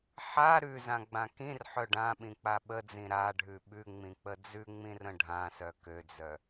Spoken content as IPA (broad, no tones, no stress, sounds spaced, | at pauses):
ħ a ɾ ʉ z ã ɡ͡b ã k ĩ r ħ œ ɖ ã ɓ ĩ k͡p a ɓ ə d͡z ĩ ɾ a ɖʱ ʉ ɓ ʉ ŋ͡m ĩ k͡p ə d͡z ʉ ŋ͡m ĩ r ə̃ ɖʱ ã s œ k ø d͡z œ